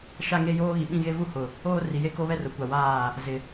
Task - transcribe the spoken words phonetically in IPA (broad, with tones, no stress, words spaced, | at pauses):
ʃa˦ŋe˦joː˦ ɣi˨ɓĩ˦ɣe˦ vu˦˨ hʊ˨ | oː˦ ri˨je˦ ko˦βɛ˦ rʊ˨˦kʷa˨waː˦˨ | zɪ˨